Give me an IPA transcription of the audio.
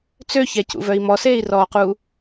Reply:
t͡søçɛcṵvœi̯ mɔseːi̯rɔːquː

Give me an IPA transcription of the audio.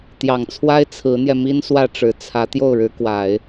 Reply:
t̪jɑ˨˩ŋt͡sʰwa˥ɪ̯ t͡sʰɹ̩˧˥n̪jɛ˧mi˥n swä˥˩ʈ͡ʂɻ̩˧˥t͡sʰä˧˥ t̪jo˥˩ʊ̯ɻɻ̩˧˥ kwa˨˩˦ɪ̯

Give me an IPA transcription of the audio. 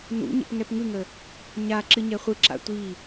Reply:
nṵɲə̰p ŋɛpŋɯŋə | ɲa ǁɨɲɛχʷɯǁa̰ tʷi

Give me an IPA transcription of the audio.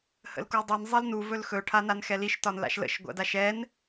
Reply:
hə̰lkudˤin zˤilnu vɵlxɵ ʈʰananxɛliʃ tɒnla̰ʃlə̰ʃ ɡʷa̰daʃɛn

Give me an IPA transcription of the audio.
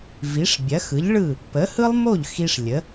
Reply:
vi˩˥ʂbʲɐ˩˥xɯ˩˥ʎɭɯ˥˩ | pə˩˥hɯ˥lˠmo˥˩ʎ xi˧ʂ lʲə˩˥

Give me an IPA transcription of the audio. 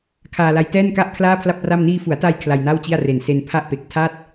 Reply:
kʰaː˧la˧j tɛː˥˩nka˥˩ʔ kʰlaː˥˩pʰla˥˩p̚ra˥˩m niː˧fu˩˦a̯ta˧j kʰla˧jna˥˩wt͡ɕi˥˩a̯re˨˩n se˧npʰa˥˩ʔpe˨˩k̚ tʰa˥˩t̚

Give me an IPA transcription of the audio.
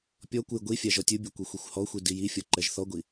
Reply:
pʲɔkʷɯj ɡʷifʲa ʒɔtʲɯbʲɛ kʷixʷixʷhɔxʷi dijifʲɔ ǃɛʒθɔɡʷi

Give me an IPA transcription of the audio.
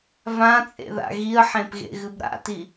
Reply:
vãt͡sʼḛða̰ ɣiə̯ħẽpɣḛɣɨb ɾa̰ti

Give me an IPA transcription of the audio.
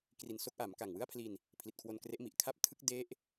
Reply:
kri˨˩nso˦˥k̚ʔa˩˦m ka˨˩ŋwɯ˥˩a̯pʰli˧n | pʰli˨˩t̚kʰwo˧nkre˦˥ʔ mi˨˩ʔkʰa˥˩p̚ tʰɯ˦˥k̚ de˦˥ʔ

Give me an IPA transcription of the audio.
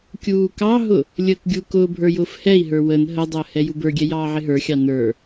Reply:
kʲuːkɑɦʊ | lʲəːkɡʲukʊːbʱə˞ jʊːfhɛi̯ɦə˞ wən ɦədˤəː hɛjubə˞ɡʲɛ jɑːʕɪɦə˞xʲɑ nə˞

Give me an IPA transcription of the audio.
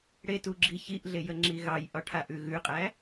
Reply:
ɽetuɡ͡ǁi çiʔɮejəŋ͡ǁi ɣɑjʔɒʈʰaʔʉ ɣʉqʼæ

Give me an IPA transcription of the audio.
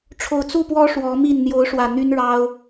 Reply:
ʈ͡ʂʰo˨˩ʊ̯t͡su˥˨pwɔ˦ ʂwɔ˨˦mi˥˨n n̪jo˨˦ʊ̯ʂwä˨˩ n̪y˦nɻɑ˦ʊ̯

